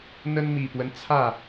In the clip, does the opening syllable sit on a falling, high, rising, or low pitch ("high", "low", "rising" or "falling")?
high